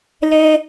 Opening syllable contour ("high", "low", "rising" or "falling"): high